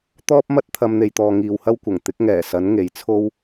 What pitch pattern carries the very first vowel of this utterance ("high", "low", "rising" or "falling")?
high